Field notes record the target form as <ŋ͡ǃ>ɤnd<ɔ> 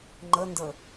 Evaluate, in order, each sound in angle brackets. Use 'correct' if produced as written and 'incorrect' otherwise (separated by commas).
correct, incorrect